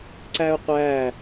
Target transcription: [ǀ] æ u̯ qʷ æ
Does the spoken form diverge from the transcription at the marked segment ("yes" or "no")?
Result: no